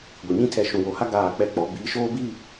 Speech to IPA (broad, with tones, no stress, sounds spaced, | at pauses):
ɡʷ i˨ ɲ ĩ˦ tʰ ɛ˨ ʃ ũ˨ w o˨ h a˦ ɡ aː˦˨ k͡p ɛ˦ k͡p ɔ˨˦ b iː˨˦ ʃ oː˦ b iː˦˨